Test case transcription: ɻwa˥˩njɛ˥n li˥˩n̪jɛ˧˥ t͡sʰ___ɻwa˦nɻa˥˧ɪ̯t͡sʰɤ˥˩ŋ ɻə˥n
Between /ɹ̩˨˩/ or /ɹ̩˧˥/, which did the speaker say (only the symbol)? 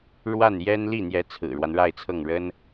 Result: ɹ̩˨˩